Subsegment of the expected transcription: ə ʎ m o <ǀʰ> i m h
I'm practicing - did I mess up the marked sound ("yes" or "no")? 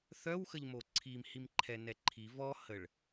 no